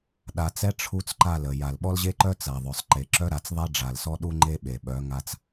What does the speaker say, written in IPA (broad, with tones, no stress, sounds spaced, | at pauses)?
ɗ a˨ t͡s ɛ˦ ʈ͡ʂʰ u˦ t͡s ǃ a˦˨ l ə˨ j a˨ l ɓ ɔ˦ l ʑ e˦ ǃ œ˦ t͡s a˨ ðˤ œ˨ sˤ ǃ e˨ ǁ œ˦ ɾ a˨ t͡s ðˤ ɛ˦ ɖ͡ʐ a˨ l s ɔ˦ ɗ u˦ ŋ͡ǃ e˦ ɓ e˨ ɓ œ˨˦ ŋ a˦ t͡s